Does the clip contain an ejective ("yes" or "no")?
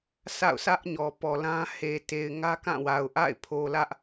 no